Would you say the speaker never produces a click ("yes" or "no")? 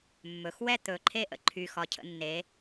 no